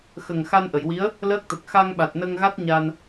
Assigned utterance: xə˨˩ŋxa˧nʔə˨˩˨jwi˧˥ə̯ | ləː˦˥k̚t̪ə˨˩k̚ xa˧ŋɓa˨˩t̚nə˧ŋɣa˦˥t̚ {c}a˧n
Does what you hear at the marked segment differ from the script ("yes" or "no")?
yes